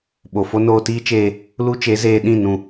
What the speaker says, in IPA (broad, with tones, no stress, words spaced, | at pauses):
ɓo˨fo˦ noː˧tiː˦t͡ʃeː˧ | lu˦t͡ʃe˨˦zeː˧ ɗĩ˦˨ nũ˦˨